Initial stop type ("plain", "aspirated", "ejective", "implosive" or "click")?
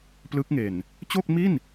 plain